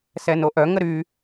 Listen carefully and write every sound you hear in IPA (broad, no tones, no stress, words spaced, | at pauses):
sɛnoʔœ ŋəɾy